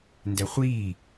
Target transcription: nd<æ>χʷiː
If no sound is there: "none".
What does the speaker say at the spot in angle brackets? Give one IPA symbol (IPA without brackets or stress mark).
æ